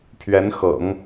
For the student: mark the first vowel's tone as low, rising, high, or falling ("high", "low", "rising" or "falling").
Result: rising